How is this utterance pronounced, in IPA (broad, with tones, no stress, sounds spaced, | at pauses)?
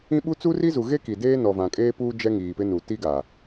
ĩ˦ ɓ u˦ t͡s u˦ r i˦ z u˨ ɣ e˦ k i˨ d eː˦ n ɔ˨ v ã˨ kʼ eː˦ p uː˦ d͡ʒ ɛ˦ ŋ iː˨ p ɪ˦ n u˨ t i˦ ɡ a˨